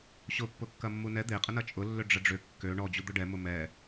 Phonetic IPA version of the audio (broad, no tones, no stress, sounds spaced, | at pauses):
ɕ ʊ pː ʊ kː ɐ mː u n ɛ d̪ e qʼ ə n ɐ t͡ʃʼ ʊ lː ʏ ɖ͡ʐ ə ɖ͡ʐ ʏ kː ø ɳ ɔ d͡ʑ u d̪ ʊ ɖ ɛ m ʊ m ɛ